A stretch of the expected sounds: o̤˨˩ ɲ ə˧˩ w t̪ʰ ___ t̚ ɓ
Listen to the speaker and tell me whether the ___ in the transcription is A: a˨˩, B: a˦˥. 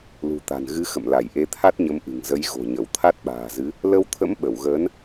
B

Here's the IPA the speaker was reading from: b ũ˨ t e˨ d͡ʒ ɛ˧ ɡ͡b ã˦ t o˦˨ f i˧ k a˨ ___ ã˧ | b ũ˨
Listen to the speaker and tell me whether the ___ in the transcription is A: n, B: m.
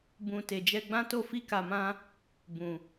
B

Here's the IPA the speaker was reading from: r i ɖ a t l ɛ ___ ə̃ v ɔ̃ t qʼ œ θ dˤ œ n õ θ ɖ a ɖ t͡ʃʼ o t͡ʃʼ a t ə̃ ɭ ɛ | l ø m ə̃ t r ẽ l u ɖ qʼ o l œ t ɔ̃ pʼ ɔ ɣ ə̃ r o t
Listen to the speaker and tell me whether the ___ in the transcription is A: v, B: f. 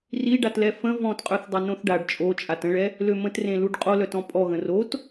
B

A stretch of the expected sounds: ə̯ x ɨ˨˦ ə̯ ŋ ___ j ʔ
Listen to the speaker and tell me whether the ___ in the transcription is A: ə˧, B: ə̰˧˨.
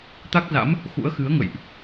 B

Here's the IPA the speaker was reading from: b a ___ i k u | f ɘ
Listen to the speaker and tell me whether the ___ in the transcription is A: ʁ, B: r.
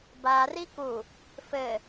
B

